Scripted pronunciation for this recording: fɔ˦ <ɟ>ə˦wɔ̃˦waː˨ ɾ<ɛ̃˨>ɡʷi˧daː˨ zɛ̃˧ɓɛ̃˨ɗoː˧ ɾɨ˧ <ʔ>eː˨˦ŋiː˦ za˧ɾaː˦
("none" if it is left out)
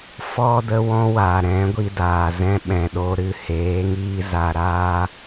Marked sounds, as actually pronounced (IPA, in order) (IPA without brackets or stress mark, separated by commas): d, ɛ̃˨˦, h